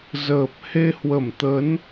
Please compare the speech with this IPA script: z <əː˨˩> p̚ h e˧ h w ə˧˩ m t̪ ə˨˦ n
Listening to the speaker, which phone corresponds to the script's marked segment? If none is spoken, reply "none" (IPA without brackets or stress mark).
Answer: əː˨˩